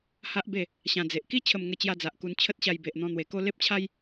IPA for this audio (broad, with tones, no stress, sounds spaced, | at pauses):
h a˦ ʔ b e˥˧ | ɕ ã˧ d͡z e˨ ʔ k i˦ t͡ɕʰ ə˥˧ m ŋ ə˥˧ t͡ɕ j a˦ d͡z a˨ ʔ k u˧ n t͡ɕʰ ə˦ t̚ ɕ a˧ j b e˨ ʔ n̪ ɔ̃˧ n̪ w e˨˩ k o˦ l e˦ p̚ t͡ɕʰ a˦ j